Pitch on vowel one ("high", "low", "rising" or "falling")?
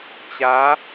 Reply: rising